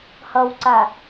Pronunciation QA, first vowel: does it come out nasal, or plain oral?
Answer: oral